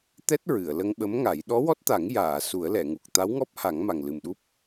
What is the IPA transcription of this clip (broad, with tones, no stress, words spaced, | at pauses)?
t̪ɛ˦˥t̚ ɹɨ˨˩˨ə̯ lə˧ŋɓə˧˥mŋa˨˩˦j ɗɔ˧˥wɔ˦˥t̚t̪a˨˩˦ŋ jaː˨˩˨ su˨˩˦ə̯lɛ˨˩˨ŋu˨˩k̚ t̪a˧˥wŋɔ˦˥p̚ha˨˩˦ŋ ma˨˩ŋlɨ˨˩mɗu˦˥p̚